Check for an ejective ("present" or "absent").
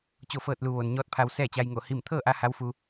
absent